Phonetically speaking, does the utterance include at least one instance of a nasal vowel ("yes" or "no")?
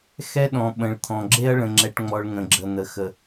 yes